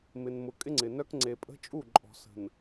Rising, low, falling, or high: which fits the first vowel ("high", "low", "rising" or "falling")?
low